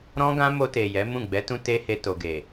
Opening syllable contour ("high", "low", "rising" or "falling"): high